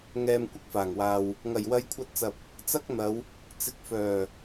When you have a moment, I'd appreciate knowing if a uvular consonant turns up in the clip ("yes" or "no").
no